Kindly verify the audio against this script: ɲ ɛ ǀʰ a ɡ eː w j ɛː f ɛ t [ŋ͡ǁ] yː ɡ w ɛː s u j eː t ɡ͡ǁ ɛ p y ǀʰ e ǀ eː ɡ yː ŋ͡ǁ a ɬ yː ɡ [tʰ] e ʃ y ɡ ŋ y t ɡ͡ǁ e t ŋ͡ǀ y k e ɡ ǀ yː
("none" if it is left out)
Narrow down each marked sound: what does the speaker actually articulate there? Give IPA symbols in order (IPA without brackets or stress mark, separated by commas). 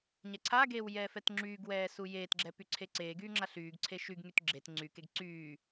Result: ŋ͡ǁ, ǀʰ